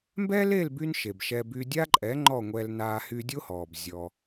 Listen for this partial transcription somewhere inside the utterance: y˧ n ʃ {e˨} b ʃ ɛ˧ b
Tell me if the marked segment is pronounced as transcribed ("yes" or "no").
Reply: yes